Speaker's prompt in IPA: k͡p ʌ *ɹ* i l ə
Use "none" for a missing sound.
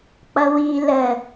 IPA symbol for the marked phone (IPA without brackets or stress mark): w